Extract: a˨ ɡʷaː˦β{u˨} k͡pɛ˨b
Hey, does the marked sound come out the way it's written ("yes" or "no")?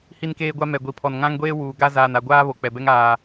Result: no